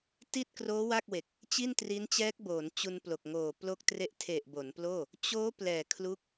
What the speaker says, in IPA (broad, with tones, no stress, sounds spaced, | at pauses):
t i˥˩ t̚ k r oː˦˥ w a˥˩ k̚ w e˨˩ k̚ | t͡ɕ i˥˩ n t r i˦˥ n t͡ɕ ɛː˦˥ k̚ b oː˩˦ n t͡ɕ u˧ n p l o˨˩ k̚ ŋ oː˨˩ p l o˥˩ k̚ t r e˥˩ ʔ tʰ e˨˩ ʔ b o˩˦ n p l oː˥˩ | t͡ɕ oː˦˥ p l ɛː˨˩ kʰ l u˦˥ k̚